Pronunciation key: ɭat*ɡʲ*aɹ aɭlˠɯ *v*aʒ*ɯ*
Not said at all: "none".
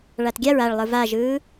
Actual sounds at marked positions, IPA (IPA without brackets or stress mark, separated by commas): ɡʲ, v, ɯː